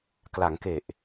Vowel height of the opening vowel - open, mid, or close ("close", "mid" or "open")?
open